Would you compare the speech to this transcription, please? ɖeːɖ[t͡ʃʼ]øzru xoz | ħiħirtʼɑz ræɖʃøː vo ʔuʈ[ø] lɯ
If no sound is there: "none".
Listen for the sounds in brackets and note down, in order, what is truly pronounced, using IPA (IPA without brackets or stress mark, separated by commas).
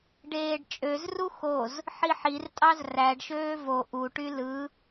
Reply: t͡ʃʼ, y